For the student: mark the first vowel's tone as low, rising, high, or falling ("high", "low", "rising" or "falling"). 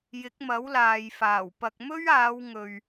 rising